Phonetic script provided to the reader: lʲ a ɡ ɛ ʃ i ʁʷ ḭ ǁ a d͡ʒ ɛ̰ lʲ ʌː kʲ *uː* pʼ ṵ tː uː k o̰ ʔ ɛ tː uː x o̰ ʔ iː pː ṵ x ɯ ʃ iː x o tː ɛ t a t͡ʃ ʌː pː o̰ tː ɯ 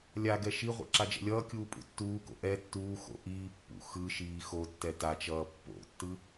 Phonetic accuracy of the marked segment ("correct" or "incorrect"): correct